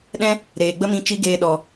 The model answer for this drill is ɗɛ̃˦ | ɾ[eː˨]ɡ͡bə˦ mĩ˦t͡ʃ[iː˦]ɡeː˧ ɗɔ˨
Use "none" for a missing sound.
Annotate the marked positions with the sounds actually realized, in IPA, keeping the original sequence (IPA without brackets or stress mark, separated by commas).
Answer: eː˨, i˦